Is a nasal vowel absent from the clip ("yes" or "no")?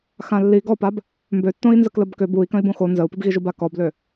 no